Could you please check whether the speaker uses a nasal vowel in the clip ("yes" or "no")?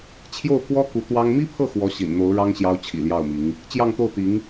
no